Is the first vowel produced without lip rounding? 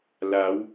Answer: yes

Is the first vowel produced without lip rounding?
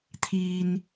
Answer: yes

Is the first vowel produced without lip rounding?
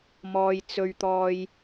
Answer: no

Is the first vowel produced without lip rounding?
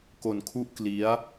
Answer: no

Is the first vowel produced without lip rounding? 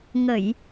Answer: yes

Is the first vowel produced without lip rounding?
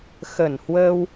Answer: yes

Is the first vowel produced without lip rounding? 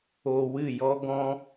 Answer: no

